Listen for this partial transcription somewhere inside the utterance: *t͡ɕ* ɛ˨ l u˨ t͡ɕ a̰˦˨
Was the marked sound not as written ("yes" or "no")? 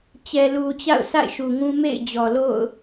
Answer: no